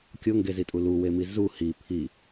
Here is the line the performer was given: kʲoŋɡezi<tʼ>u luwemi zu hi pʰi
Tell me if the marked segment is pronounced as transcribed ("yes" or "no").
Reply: yes